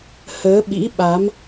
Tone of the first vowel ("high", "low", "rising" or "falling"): rising